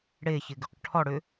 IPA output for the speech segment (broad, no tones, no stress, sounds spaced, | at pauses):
ɽ e ç ɪ ɡ ʏ q ʈʰ ɔ ɽ ʏ